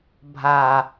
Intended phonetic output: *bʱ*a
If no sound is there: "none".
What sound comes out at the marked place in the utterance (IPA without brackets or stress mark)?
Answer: bʱ